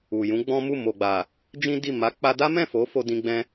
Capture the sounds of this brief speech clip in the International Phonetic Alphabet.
u˨ j ũ˨˦ ɡ͡b ɔ̃˦ m u˦˨ m o˨ ɡ͡b a˨ | d͡ʒ ĩ˦ d i˦˨ m a˨˦ k͡p a˧ d a˦ m ɛ̃˦˨ f o˨˦ f o˧ d ĩ˧ ɡ͡b ɛ̃˧

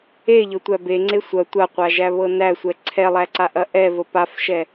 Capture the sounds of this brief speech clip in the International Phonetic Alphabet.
e ʎ ɤ tʷ æ b e ŋ͡ǀ e sʷ ɐ tʷ a qʷ a ʒ æ β ɤ n æ sʷ ɛ ǀʰ ɛ lˠ æ ǀ a ʔ ɐ ʔ ɛ v ə p a f ʃ ɛ

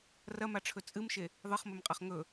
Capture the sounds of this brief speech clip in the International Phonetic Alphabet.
r ɐ m a ʈ͡ʂʰ ɵ t͡sʼ ɨ m ʃ e | ðˤ ɨ χ m ɵ m qʼ ɐ χ ŋ ɵ

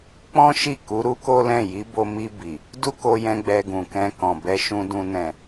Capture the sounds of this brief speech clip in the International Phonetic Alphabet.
k͡p ɔ̃˦ ʃ i˦˨ k u˨˦ ɾ u˦ k o˦ l ɛ̃˦˨ j i˨˦ b o˧ m i˧ b i˨ | d u˦ k o˧ j ɛ̃˧ ɡ͡b ɛ˧ ɡ ũ˨ k ɛ̃˧ k ɔ̃˨ b ɛ˧ ʃ ũ˧ d ũ˧ n ɛ̃˨

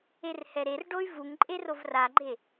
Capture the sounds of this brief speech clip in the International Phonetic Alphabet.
e r h ɛ ɾ e r ɖ o y̯ v u ŋ ǃʼ e r o v r a ɡ͡ǃ e

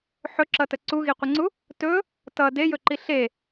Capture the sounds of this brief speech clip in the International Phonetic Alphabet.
ħ ɵ ǁ ʌ t ə ǀ u ɣ i qʷ ə ŋ͡ǀ u | t ɵ | t ʌ d e j ɵ ǃ i ɬ e

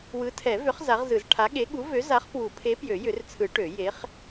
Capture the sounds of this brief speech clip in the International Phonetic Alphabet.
w ɯ˨˥ tʰ ɛ˨˩˦ v ʏ˨˥ χ z a˨˥ ʁ z ɯ˨˩˦ z ʈʰ a˨˥ ɠ e˨˥ ɠ u˨˥ v ø˨˥ z a˨˥ χ p w u˨˩˦ pʰ e˨˥ p j ø˨˩˦ j ʏ˨˩˦ r t͡sʰ ɯ˨˩˦ ʈ ø˨˩˦ j e˨˥ χ

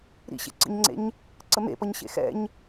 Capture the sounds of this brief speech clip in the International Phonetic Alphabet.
ɾ ḭ ɕ ḛ ǀ ə̰ ɲ ŋ͡ǀ ḛ ɲ | ǀ ə m ḛ p ʌ ɲ ɕ ḛ x ɛ̰ ɲ

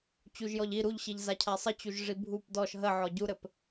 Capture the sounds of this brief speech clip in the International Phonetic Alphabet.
t͡ɕ u ʒ j ɔ ʎ i ɾ u ʎ ɕ i ʎ z a cʰ a sˤ ə t͡ɕ u ʒ ʐ i bʱ u p d ɔ ʃ ɦ ə ʕ ɔ ɟ u ɾ ɘ p

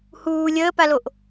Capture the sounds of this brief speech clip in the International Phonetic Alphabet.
h uː lʲ əː p a l o ʔ

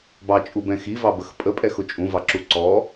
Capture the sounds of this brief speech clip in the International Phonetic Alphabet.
b ɑ t͡ʃʼ u b ɛ̃ x i v ɑ b ə x pʼ ə pʼ ɛ x ʊ t͡ʃʼ ũ v ɑ ǁ u ǀ ɔ

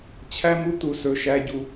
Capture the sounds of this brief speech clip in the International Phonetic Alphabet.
t͡ɕʰ æ˦ m u˦ t̪ u˦ s ɵ˦ ʃ æ˦ ɟ u˦

